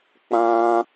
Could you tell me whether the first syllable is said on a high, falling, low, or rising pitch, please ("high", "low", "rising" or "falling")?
high